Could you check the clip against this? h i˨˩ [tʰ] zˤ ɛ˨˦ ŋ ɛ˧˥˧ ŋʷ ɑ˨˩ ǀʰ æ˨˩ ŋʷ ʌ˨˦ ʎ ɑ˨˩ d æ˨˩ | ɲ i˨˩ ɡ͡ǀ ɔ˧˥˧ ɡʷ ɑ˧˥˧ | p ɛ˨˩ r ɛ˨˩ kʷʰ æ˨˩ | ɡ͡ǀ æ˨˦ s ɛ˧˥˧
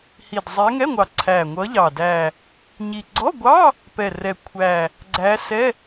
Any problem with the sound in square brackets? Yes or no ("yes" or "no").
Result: yes